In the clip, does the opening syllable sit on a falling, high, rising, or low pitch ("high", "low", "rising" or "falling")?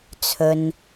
low